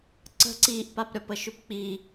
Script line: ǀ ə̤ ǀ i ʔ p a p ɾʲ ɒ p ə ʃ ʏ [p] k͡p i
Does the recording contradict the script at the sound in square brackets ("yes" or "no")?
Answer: no